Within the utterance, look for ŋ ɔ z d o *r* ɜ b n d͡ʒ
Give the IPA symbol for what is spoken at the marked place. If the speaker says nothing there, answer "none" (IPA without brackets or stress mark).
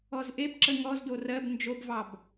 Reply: r